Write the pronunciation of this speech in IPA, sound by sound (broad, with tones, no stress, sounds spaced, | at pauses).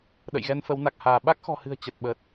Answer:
ɗ ə̰˧˨ j ɣ ɛ˧ n f ə˨˦ w n a˨˩ k̚ h aː˧˩ ɓ a˦˥ k̚ x ɔ̤˨˩ h ɨ̤˨˩ ə̯ t͡ɕ ə˨˩ t̚ ɓ ə˨˩ t̚